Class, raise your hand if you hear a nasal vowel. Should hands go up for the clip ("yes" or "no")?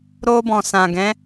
yes